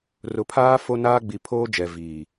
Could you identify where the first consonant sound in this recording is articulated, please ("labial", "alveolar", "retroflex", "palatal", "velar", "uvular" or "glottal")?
alveolar